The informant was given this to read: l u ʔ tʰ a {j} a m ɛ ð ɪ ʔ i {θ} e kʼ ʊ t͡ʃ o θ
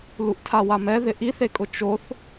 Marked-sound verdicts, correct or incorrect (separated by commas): incorrect, correct